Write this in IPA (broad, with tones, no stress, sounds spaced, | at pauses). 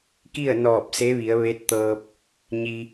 k i˥˨ ə̯ n ɔː˧˩ p̚ s e˧˥ ʋ i˩˧ ə̯ ʋ e˧˥ t̚ t̪ ɤː˧ p̚ | ɲ i˧